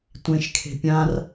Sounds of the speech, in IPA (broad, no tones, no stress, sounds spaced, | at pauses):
tʷ ẽ ʃ kʰ e̤ pʲ ã r